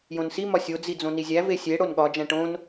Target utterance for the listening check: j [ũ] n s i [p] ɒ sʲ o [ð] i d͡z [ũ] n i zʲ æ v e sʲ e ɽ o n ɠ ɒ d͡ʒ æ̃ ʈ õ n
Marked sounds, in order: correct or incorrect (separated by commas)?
incorrect, incorrect, incorrect, incorrect